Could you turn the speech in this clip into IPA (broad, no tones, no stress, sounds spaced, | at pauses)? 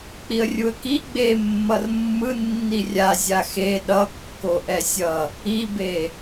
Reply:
k͡p i ə̯ rʲ u ə̯ k i ɡ͡b e mː ʌ r mː ɯ nː i rʲ a zʲ a x e ɗ ʌ kː o ʔ ɛ sʲ ʌ | i b e